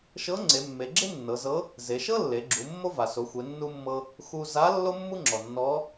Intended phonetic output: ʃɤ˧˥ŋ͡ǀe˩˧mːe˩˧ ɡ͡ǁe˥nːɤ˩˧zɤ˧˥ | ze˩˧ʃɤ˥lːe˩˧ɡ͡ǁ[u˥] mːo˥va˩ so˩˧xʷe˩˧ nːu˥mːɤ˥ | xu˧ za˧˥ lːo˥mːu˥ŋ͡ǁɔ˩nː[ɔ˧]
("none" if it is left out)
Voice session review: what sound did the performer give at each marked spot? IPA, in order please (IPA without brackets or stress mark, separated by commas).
u˩˧, ɔ˧˥